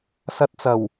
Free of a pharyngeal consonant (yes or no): yes